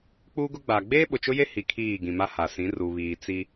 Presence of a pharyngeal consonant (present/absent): absent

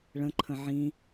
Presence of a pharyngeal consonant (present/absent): present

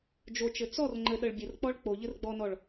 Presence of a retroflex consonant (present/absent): present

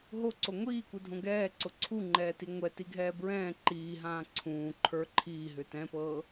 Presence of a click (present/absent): present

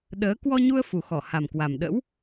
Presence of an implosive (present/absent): present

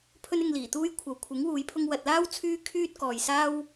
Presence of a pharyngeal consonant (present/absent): absent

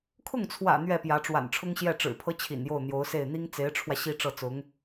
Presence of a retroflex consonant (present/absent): present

